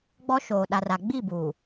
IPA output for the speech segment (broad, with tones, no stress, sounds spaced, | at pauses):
ɡ͡b ɔ˦ ʃ oː˨ ɗ a˨ r a˨ ɡ͡b i˦˨ b u˨